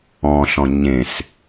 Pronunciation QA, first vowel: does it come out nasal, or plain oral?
nasal